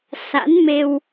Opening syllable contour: rising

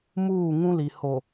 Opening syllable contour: falling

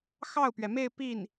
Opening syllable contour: falling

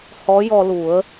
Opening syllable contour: rising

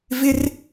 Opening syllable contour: high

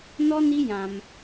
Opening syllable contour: high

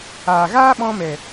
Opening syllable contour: low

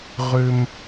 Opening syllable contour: high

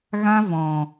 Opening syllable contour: high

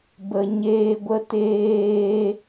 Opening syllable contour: low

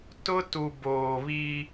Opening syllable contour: high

